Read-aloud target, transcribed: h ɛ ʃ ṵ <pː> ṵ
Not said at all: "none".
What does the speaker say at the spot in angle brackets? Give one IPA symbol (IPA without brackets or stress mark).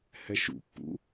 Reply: pː